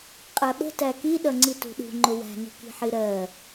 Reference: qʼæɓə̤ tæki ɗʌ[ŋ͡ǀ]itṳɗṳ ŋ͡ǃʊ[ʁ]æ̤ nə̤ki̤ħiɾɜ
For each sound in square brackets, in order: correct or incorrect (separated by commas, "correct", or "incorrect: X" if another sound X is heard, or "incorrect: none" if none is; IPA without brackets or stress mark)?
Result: correct, incorrect: w